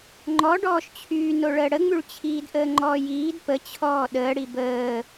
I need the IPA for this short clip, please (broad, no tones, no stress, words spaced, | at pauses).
ŋ͡ǃɔ ɖɔːʃt͡ɕʰyː noɭəːɽəŋ͡myɭ t͡ɕʰiːdʔəːŋ͡ǃɔːjiːd pə t͡ɕʰɔːɗəːɽi bəː